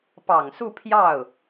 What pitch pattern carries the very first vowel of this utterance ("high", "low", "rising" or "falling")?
low